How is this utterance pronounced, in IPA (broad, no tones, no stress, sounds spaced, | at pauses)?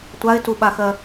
tʷ a ɪ̯ t u ɓ a x ɜ